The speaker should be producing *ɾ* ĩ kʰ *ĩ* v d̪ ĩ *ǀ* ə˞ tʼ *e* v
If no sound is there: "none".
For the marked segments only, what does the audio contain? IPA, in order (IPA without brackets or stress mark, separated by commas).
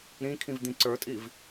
ɾ, ĩ, ǀ, i